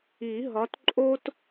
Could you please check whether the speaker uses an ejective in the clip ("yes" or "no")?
yes